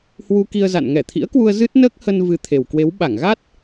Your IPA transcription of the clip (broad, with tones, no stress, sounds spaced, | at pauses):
h w u˧ k i˧ ə̯ z a̰˧˨ n ŋ ɛ˧˩ t̪ʰ ḭ˧˥ ə̯ k w u˧ ə̯ z ɨ˦˥ t̚ n əː˦˥ k̚ h ə˧ n v ɨ˨˦ t̪ʰ e˨˩ w k w e˨˦ w ɓ a˧˩ ŋ ɣ a˦˥ t̚